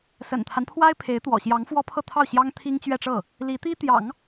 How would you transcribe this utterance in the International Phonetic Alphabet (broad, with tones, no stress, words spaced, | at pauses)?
sə̰˨˩nt̪ʰa˦n pʰwa˥ɪ̯pʰe˧˥ɪ̯t̪wɔ̰˨˩ ɕjɑ˧˥ŋfwɔ˥pʰɤ˥˧t̪ʰɑ˥˩ʊ̯ ɕjɑ˥ŋ t̪ʰi˥ŋt͡ɕɥɛ˥˧ʈ͡ʂɤ˥˩ | li˧˥t̪i˥ t̪jɑ̰˨˩˦ŋ